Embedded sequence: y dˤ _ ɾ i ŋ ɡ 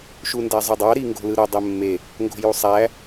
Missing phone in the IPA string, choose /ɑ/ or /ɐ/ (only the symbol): ɑ